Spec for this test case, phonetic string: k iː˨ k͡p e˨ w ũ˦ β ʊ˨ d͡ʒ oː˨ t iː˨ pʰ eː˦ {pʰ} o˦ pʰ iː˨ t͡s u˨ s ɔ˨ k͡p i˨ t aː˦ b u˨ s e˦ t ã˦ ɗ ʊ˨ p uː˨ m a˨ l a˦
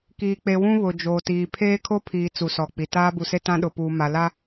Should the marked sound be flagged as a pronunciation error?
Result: yes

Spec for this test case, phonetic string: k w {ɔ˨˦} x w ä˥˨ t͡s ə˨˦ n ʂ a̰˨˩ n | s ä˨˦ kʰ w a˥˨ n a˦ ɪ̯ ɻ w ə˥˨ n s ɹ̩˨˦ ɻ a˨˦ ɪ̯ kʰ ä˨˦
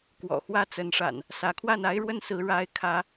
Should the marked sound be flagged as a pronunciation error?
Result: yes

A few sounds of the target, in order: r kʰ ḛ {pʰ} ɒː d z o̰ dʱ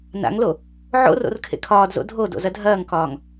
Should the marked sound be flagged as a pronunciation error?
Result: yes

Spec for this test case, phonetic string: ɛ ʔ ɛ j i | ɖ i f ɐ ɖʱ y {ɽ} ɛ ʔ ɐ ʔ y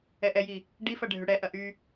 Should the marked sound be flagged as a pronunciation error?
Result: no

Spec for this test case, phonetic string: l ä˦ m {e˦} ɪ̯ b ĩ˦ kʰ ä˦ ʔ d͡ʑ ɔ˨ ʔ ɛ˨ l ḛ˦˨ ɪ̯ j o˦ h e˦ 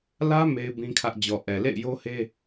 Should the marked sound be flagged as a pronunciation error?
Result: no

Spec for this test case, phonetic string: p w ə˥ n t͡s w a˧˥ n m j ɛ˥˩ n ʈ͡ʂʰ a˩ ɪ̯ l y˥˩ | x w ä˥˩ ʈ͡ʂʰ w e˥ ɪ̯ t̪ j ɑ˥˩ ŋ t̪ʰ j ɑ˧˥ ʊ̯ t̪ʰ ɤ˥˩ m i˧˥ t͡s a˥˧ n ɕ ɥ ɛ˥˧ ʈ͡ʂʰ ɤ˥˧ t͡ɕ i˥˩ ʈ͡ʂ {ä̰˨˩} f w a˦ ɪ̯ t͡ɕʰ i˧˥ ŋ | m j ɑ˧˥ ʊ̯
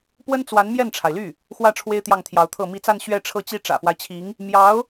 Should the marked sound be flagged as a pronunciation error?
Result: no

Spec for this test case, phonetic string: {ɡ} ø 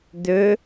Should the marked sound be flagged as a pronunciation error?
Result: yes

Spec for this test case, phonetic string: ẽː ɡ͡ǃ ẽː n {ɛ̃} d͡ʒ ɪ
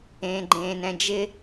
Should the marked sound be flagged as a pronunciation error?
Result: no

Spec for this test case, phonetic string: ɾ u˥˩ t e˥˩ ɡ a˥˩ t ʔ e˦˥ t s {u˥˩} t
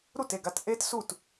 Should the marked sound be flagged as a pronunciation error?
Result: no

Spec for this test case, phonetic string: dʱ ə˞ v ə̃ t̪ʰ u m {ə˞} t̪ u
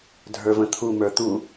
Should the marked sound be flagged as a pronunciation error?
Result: no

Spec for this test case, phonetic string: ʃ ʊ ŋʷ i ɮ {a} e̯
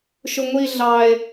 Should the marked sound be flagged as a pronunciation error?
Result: yes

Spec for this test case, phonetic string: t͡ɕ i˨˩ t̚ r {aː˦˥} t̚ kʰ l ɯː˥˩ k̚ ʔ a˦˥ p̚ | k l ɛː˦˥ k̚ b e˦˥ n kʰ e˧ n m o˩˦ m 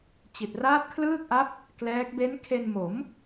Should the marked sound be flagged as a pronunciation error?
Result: no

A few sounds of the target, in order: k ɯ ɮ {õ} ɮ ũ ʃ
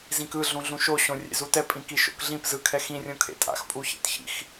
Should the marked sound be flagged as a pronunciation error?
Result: yes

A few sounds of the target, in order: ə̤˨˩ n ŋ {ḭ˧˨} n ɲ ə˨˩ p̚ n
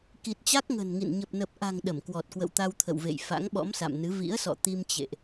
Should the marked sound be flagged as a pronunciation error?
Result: no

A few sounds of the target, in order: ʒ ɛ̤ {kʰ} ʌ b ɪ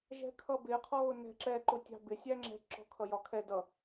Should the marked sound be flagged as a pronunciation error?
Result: no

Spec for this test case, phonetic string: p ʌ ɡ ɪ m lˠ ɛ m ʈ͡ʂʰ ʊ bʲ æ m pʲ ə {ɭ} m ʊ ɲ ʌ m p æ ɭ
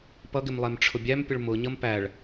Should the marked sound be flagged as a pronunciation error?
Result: no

